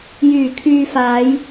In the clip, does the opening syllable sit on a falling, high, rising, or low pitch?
low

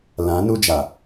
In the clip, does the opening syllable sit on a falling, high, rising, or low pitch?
rising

